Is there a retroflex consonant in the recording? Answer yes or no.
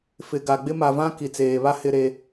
no